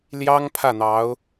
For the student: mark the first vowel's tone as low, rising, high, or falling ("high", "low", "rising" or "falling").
high